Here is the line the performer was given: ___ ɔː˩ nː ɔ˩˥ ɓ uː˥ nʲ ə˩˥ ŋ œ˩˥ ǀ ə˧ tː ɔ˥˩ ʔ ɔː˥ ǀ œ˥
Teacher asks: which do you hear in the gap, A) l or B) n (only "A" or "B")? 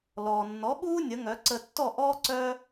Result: A